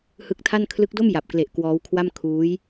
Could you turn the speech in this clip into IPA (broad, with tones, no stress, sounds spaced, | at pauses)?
h ɯ˦˥ k̚ tʰ a˥˩ n kʰ l ɯ˦˥ k̚ d o˥˩ m j a˨˩ p̚ k l e˨˩ ʔ k w ɔː˦˥ w kʰ w a˥˩ m kʰ uː˦˥ j